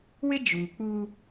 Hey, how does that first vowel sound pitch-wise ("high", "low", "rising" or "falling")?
high